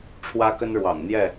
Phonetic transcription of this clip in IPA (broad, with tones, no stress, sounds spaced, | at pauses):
ʈ͡ʂʰ w ä˦ k ə˦ n ɻ w ɑ̰˨˩ ŋ n̪ j ɛ˥˨